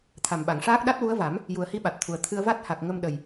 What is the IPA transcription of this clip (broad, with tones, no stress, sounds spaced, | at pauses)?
t̪ʰ a˨˩ m ɓ a˨˩˨ ŋ ʂ aː˦˥ k̚ ɗ a˦˥ t̚ w u˧˥ ə̯ v a˨˩˦ m | j u˨˩ ə̯ h i˧˥ ɓ a˨˩ t̚ t̪ʰ u˨˩ ə̯ t̪ʰ ɨ˧ ə̯ v a˦˥ t̚ h a˨˩ k̚ ŋ ə˧ m ɗ ə˨˩ j